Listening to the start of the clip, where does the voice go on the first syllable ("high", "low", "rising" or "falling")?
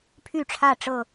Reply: falling